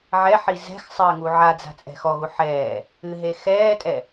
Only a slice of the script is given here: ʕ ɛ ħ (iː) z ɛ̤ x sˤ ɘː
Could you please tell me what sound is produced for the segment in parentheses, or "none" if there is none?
i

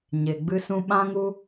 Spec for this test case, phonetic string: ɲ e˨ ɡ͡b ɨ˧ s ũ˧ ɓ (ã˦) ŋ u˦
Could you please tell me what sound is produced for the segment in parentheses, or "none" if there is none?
ã˦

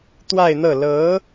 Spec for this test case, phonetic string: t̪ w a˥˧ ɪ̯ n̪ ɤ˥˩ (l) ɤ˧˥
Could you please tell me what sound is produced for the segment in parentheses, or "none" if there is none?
l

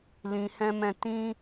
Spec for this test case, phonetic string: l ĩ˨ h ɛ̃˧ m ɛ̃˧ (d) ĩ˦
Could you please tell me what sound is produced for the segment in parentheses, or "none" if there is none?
t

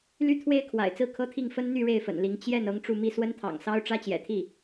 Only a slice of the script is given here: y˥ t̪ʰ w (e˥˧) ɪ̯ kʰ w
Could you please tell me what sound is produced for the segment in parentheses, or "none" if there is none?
e˥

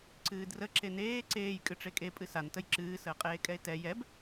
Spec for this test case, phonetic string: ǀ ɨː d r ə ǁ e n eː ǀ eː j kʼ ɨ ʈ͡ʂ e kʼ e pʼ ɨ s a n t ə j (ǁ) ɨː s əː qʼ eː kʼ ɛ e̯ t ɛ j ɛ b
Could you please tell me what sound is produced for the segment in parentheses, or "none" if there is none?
ǁ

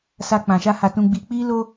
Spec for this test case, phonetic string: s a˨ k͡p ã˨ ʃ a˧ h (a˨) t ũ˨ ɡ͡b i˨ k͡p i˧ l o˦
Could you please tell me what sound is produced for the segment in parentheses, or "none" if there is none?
a˨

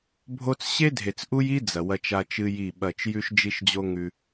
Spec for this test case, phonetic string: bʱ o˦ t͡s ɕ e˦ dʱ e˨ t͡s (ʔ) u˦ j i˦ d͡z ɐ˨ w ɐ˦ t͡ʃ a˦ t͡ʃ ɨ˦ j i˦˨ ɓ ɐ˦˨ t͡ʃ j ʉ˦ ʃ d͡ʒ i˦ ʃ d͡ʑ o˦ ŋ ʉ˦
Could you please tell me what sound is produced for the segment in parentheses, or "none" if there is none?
ʔ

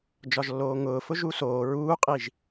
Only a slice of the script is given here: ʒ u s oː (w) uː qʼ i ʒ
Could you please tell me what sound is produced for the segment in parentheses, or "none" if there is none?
ɹ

